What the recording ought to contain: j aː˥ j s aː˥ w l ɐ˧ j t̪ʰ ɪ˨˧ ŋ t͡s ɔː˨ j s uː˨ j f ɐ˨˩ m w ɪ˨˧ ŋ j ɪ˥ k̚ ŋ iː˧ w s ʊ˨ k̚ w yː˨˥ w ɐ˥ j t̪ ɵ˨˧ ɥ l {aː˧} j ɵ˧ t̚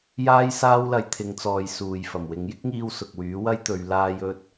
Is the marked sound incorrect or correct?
correct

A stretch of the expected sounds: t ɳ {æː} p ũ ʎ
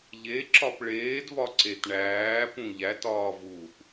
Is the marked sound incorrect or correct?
correct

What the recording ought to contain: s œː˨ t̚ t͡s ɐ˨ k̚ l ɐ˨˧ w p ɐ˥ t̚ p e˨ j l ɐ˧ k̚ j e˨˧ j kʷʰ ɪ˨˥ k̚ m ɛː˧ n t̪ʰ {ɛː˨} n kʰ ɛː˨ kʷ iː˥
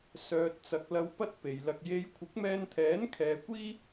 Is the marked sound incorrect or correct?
incorrect: ɛː˨˥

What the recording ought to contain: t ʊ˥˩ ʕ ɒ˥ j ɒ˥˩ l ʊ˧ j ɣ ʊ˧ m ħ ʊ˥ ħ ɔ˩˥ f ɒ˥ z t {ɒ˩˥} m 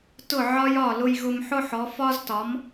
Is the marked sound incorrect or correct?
correct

